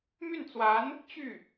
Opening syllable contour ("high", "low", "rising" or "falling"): falling